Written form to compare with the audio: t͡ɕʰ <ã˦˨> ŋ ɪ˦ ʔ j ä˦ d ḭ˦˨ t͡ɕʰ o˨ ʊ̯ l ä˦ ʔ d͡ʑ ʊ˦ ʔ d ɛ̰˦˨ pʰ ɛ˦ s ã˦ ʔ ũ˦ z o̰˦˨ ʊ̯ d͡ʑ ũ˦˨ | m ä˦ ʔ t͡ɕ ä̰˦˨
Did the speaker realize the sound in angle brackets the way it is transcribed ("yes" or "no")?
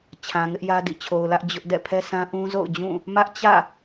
no